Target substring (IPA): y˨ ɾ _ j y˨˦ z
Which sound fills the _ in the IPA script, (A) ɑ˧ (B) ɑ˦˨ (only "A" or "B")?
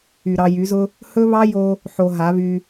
A